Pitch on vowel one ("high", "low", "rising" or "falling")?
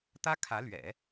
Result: high